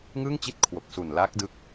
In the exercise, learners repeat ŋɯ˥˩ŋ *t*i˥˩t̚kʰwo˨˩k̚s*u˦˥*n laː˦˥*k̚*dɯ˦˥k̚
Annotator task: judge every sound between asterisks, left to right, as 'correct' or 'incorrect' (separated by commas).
incorrect, incorrect, correct